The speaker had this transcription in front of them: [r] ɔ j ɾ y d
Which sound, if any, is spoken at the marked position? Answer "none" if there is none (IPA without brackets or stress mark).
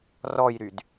r